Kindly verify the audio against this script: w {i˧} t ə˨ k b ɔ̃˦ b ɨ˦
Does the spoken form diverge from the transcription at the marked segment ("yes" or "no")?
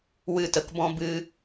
yes